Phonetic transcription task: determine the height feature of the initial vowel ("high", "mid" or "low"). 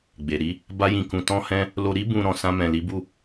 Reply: mid